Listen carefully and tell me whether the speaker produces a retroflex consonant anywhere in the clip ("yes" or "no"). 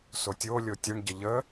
yes